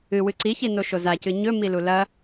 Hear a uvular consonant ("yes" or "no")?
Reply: no